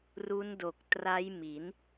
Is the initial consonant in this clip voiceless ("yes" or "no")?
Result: no